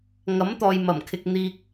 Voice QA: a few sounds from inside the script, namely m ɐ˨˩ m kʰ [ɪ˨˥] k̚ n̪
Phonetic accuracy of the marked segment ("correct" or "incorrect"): incorrect